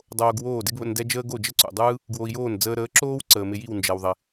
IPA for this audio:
dˤ oː˧ ɡ w oː˥˩ d ɪ˥ ɡ β ə̰˧ n d ɛ˥ d͡ʒ əː˥ ɡ o˥˩ d͡ʒ ə˥ ǀ ṵ˩ dˤ ɯː˥ | ɡ w o˧ i̯ j oː˥˩ n d͡z əː˧ ɾ əː˩˥ ǁ oː˥ w ǀ əː˩ m ɪ˧ j i˥˩ w n d͡ʒ ɛ˩ w ðˤ ɪ˩

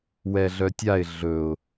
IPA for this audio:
w ɛ ɮ œ tʲ a ɪ̯ ɮ ɵ ʊ̯

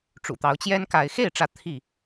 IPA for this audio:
ʈ͡ʂ ṵ˨˩ t̪ ɑ˨˦ ʊ̯ t͡ɕ j ɛ˦ n k a˨˦ ɪ̯ x e˥˨ ɪ̯ ʈ͡ʂ ä˨˦ t̪ʰ i˥˨

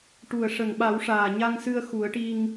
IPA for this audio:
ʈ u˨˩ ə̯ ʂ ə˨˩ ŋ ɓ a˨˩˦ w ʂ aː˨˩ ɲ a˧ ŋ s ɨ˧ ə̯ x u˨˩˦ ə̯ ʈ i˧ ŋ

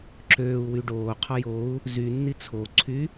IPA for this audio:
ǁ øː u̯ w y ɖ oː qʰ ɔ j o u̯ | z y nː i t͡sʰ o ǀʰ y

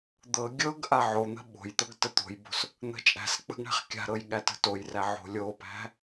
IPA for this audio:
d̪ ɤ ɡʲ ɤ ɡ ʔ a ʕ o n̪ ə̤ ɓ o̤ j t̪ ɤ ɡ t ə t̪ o̤ j b o̤ s | n̪ ə̤ t͡ʃʼ æ̤ s k͡p ə̤ ɡ ɳ æ̤ χ kʲ a̤ ɾ ɤ j ɠ æ t ə̤ t o j r æ ʕ o̤ lʲ o p æ̤

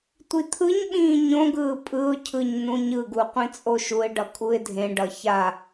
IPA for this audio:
tʷ i t̪ʰ ɯ ɲ ɓ ĩː ɲ õ ɡ ɯː pʼ ɯ ʊ̯ cʰ ɯ ɲ n ũ ɲ ɯ ɡ u qʷ ĩ t͡sʼ o ʃ u ɪ̯ ɖ ʌ kʼ u ɪ̯ dʱ ẽ ɖ ʌ ç a

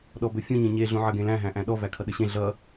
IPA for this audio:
ɗ ɔ b ɵ fʲ ũ ɲ ẽ ɲ e ɮ ũ ʕ ə ɡ ẽ l æ̃ ɦ æ̃ ʔ æ̃ ɗ ɔ v æ kʰ ʌ ɗ ə ɕ ẽ ɮ ʌ

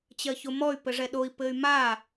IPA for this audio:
t͡ɕ ɜ ç o m ɔ y̯ p ɘ ʐ ɛ ɗ o i̯ p ɘ y̯ m a

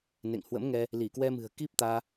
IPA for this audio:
n ḛ˧˨ ŋ h w ə̰˧˥ m ŋ ɛ˧ | l i˧˩ k w ɛ˧ m ɨ̤˨˩ ə̯ k i˦˥ p̚ t̪ aː˧

